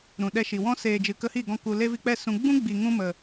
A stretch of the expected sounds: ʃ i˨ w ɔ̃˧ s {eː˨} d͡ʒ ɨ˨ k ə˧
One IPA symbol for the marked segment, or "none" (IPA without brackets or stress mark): eː˨